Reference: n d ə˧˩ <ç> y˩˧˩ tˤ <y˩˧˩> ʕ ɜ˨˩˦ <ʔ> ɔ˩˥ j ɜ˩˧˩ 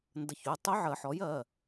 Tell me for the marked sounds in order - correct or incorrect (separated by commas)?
correct, incorrect, incorrect